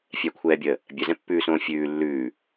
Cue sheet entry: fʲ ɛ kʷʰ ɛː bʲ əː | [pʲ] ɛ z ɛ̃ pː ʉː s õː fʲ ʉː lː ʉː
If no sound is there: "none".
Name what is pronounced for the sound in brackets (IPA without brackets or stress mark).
bʲ